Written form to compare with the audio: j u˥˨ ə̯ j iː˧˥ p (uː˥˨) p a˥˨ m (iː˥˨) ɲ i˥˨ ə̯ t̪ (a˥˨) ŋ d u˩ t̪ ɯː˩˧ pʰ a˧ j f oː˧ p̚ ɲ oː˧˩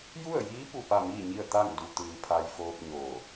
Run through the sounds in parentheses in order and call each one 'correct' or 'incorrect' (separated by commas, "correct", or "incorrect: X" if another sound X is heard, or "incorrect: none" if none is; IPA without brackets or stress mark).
incorrect: u˥˨, correct, correct